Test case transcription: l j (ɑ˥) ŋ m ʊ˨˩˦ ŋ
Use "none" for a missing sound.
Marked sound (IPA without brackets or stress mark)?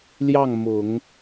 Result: ɑ˥˩